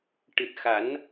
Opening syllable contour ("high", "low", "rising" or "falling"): low